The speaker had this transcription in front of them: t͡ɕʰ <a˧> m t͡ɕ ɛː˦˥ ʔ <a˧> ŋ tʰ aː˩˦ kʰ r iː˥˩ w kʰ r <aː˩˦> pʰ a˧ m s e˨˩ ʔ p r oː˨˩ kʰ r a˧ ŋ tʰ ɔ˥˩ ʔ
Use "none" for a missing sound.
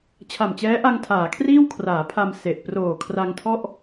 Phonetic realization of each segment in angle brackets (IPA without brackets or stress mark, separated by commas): a˨˩, a˧, aː˩˦